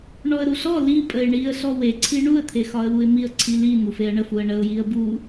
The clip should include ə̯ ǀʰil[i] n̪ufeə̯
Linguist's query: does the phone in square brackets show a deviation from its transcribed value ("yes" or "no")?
no